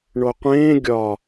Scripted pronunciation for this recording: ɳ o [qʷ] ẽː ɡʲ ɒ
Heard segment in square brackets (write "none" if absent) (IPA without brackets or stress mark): qʷ